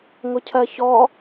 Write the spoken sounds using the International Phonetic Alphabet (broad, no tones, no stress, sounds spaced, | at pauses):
ŋ ʊ cʰ ɜ ç ɔ